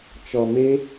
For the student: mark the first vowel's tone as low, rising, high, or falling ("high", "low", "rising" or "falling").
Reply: low